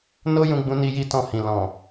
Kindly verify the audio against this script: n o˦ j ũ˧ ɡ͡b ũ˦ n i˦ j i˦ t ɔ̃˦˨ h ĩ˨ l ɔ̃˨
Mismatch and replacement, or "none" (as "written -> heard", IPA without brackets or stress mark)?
none